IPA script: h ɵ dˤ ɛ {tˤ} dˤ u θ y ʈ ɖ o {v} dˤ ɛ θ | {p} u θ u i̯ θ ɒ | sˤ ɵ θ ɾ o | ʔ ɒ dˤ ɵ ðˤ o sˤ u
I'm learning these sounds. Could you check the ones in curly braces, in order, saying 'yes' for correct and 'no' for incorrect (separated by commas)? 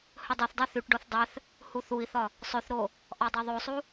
no, no, no